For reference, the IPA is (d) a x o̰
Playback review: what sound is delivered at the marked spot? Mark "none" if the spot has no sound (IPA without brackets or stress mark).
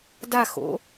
d